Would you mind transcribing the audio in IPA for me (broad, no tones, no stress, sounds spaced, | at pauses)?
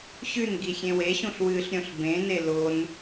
ɕ ʉ n ɡ i xʲ ẽ w e ɕ ũ ɬ w ɨ ɬ ɾʲ õ ɬ b ẽ n e l o n